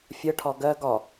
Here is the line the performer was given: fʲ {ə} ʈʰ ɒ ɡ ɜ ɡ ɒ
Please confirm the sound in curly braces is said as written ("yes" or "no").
yes